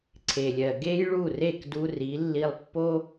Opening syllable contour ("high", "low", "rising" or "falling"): low